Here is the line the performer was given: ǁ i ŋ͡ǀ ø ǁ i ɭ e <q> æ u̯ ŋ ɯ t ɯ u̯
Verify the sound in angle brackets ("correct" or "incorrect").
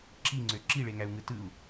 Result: incorrect